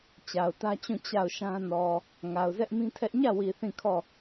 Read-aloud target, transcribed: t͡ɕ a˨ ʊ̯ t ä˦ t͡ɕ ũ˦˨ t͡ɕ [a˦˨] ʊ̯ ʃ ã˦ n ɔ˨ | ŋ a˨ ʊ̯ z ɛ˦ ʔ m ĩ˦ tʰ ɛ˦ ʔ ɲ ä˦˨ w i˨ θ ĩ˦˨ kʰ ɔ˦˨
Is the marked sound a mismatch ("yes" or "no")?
no